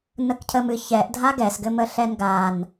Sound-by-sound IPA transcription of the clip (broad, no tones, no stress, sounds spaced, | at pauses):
n ə k cʰ ə m ɨ ç ɛ ʔ dʱ a ɡ ɛ s ɡ ɘ m ə ɬ ɛ n ɡ a n